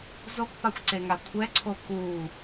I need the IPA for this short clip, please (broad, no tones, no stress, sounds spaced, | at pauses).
z o k p a xʷ ǀ e ŋ a kʷʰ ɛ ǀʰ o k uː